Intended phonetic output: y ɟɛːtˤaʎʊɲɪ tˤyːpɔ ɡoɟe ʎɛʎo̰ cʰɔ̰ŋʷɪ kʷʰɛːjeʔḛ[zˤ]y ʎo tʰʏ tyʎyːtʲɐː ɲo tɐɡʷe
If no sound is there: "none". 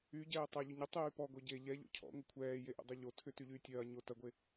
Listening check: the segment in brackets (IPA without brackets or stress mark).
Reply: dˤ